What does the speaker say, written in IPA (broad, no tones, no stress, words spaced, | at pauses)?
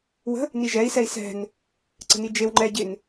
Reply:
wə̤ | niʒɛi̯ sɛi̯sɛ̤n | ǀə̤nid͡ʒew ŋ͡ǃɛ ɟɪn